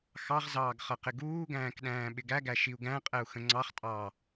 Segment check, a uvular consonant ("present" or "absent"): present